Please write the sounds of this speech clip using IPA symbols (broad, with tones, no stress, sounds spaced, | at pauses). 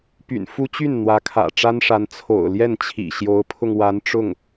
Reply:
p y̰˨˩ n f u˥ t͡ɕ y˥˩ n n̪ w ä˧˥ kʰ ä̰˨˩ ʈ͡ʂ a˥ n ʂ a˧˥ n t͡sʰ o̰˨˩ ʊ̯ l j ɛ˥˩ n t͡ɕʰ ḭ˨˩ ɕ j o˧˥ ʊ̯ pʰ ʊ˧ ŋ w a˧˥ n ʈ͡ʂ ʊ˥˩ ŋ